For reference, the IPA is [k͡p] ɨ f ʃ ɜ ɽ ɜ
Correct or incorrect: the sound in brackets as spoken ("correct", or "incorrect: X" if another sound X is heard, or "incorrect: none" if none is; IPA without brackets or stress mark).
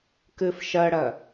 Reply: incorrect: k